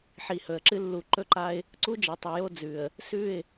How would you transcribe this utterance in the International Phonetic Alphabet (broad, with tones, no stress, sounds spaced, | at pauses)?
ħ i˨ h ɵ˨ ə̯ ǁ ɨ˦ lː u˨ ǃ ɵ˦ ǃ a˦ ɪ̯ | ǀ u˦ d͡ʒ ɐ˨ tˤ ɵ˨ j o˦ d͡z ʉ˨ ə̯ | s ʉ˦˨ ɪ̯